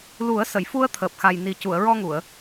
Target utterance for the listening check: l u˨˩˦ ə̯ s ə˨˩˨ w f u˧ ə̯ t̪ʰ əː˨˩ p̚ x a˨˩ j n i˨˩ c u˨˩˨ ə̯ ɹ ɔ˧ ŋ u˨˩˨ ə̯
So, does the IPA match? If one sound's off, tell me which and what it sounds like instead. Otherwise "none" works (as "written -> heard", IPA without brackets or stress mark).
w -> j